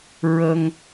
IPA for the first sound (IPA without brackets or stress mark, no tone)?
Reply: ɹ